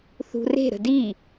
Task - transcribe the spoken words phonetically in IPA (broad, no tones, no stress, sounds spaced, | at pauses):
θ ṳ r e̤ ɾ ə̤ d i